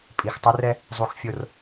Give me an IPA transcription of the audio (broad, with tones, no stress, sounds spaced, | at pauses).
pʼ i˨ x tˤ ʏ˦ r ɛ˦ | zˤ u˨ x fʲ o˨ r